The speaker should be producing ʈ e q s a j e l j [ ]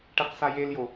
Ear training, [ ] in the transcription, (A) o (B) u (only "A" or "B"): A